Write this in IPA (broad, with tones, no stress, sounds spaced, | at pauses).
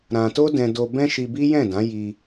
ɾ ã˧ t o˦ d ɛ̃˧ d o˧ b ɛ̃˦ ʃ i˧ b i˦ j ɛ̃˦˨ d ã˨˦ j i˧